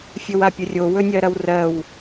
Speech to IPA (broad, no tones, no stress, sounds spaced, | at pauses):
fʲ ɵ w a pʲ ɵ rʲ o w ɵ nʲ ɜ ɾ ɐ w r ɜ w